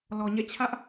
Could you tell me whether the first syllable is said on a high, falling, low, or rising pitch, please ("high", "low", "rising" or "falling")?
low